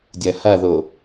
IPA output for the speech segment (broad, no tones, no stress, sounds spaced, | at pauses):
dʲ ɐ h ɐ ð o